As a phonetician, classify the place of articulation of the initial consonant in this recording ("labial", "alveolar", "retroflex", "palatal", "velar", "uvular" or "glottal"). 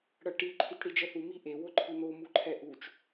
retroflex